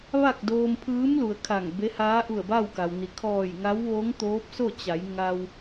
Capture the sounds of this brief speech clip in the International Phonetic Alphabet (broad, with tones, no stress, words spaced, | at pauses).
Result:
ʋa˥˨k̚doː˧mpʰɯː˧˥mlu˩ə̯ kʰa˧˩ŋbe˧˥ haː˧˥ʔu˧˩ə̯ba˥˨w ka˩wni˩ kʰɔː˧˩jŋa˧˥w ʋo˧˥ŋ t̪oː˧˥p̚so˥˨ t͡ɕa˩˧j ŋa˧w